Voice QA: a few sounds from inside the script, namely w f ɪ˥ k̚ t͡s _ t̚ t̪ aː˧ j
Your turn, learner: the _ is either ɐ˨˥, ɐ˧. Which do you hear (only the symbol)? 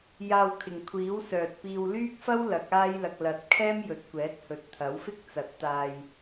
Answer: ɐ˨˥